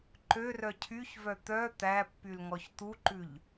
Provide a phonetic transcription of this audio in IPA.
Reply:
ǃørœ cʰyçvœ t̪œ t̪æpːylŋɔç t̪uǃʉʎ

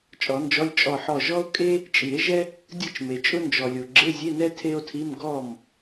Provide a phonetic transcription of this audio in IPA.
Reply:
t͡ʃʼɔ˨˩˦nd͡ʒɔ˧˥˧lʲ t͡ʃʼɔ˧˩ħɔ˧˩ ʒɔ˥o̯kʼe˥ | t͡ʃʼi˨˩˦e̯ʒɛ˥ | dʲɯ˥˩t͡ʃme˩ t͡ʃʼʊ˥ nd͡ʒɔ˩lʲo˩ ɡ͡ǁe˧˥˧zʲe˧˥˧nɛ˥ tʰe˥o̯tʰi˧˥˧m ɡɔ˥˩m

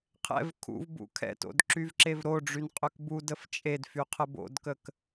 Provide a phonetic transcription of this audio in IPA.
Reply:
qʰɛ̰v kʰṵv bṵkʰɛ̰to̰d ǁyvǁevɾoɖ͡ʐyn qʼøkbudəf t͡ʃʼedfy qʰəbo̰dkək

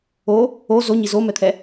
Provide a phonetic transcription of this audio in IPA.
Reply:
o | o zoɲi zomɛt̪ʰɛ

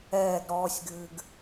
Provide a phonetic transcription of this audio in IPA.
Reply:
ɛːɡ ɾɔːsʲɡɨːɡ

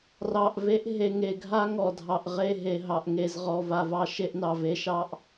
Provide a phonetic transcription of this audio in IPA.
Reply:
rɑ˨ʔ ve˦ʔ ɦe˨ŋe˨ɡʱa˦ ŋɔ˨dʱɑ˨ʔ ʁe˦˨ɦe˨ɦɑ˨ʔ ŋe˨zʁɔ˨ va˨vɑ˦ ʃe˦ʔnɑ˨v e˦ʃɑ˦ʔ

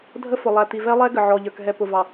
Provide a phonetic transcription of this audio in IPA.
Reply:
dʱə˦fʊ˨ lˠæ˨t̪i˨vɛ˦lˠɛ˦ ɡə˨ʕɔ˨ʎə˞˨k ɦɛ˨ pʊ˨vɑ˨

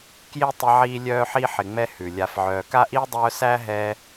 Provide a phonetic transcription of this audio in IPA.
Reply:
kji˥tˤɪ˦ ʕiː˥lʲœː˥ħi˥ ħɪ˨ŋ͡mɛ˦ hʉ˩lʲa˨fʕœː˨ ka˥ʔiː˥dˤœː˦sæː˥ ɦɛ˦

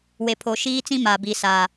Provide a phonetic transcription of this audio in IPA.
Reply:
we˨pʰo˨ ʃiː˦t͡sĩ˦ ma˨bi˨sa˨

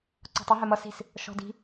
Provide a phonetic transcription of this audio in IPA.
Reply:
ǀɔ̤tˤə ɦɛmʌ si̤s | ʃɔ̤di̤

